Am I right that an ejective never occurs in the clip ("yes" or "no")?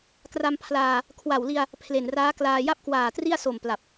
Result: yes